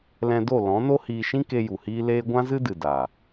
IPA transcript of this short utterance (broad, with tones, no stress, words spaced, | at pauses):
lɛ̃˧do˦˨ lɔ̃˨˦no˦ hiː˧ʃĩ˦ke˧ ju˨hiː˦ leː˧ ɡʷã˦zɨ˦dɨ˨ da˨